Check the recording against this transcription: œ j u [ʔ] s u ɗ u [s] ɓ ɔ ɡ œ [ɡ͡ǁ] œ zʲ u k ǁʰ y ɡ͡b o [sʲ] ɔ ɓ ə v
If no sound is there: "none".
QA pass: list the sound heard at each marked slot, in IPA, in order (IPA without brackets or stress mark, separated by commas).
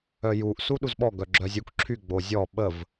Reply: ʔ, z, ɡ͡ǁ, zʲ